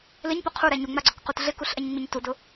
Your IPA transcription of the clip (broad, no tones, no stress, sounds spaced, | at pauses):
l ɪ ɲ p ʊ qʰ u ɾ ɛ ɲ u ŋ͡m a ɡ͡ǀ o k q u t ɮ ɪ k u ɬ ʔ ɛ ɲ ŋ͡m i ɲ t u d ʊ